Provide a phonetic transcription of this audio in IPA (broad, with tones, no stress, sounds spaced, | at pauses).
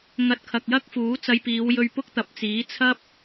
ŋ ɐ˨˥ t̚ kʰ ɐ˨ k̚ j ɐ˥ k̚ f uː˨˥ t͡s ɐ˧ j p iː˨˧ w j ɵ˧ ɥ p ʊ˥ k̚ t̪ ɐ˨˥ p̚ t͡s iː˨˥ t͡sʰ ɐ˥ p̚